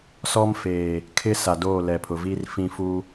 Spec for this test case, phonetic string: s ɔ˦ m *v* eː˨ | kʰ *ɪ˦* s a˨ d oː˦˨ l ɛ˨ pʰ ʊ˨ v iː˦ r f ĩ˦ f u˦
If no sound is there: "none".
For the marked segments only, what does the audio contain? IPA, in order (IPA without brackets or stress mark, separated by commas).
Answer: f, ɪ˦